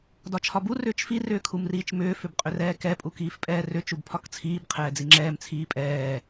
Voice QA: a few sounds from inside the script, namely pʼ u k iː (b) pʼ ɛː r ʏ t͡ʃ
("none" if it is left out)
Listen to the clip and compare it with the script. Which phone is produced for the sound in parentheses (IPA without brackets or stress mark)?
f